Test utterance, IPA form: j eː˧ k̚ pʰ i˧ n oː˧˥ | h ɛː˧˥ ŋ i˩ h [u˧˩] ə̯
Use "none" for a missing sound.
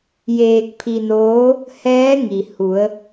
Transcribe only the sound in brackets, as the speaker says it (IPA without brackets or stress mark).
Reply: u˩˧